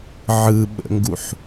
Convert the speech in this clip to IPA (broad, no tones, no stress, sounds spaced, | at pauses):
ʕ ɯ ɓ ə̰ ŋ ɡ u ħ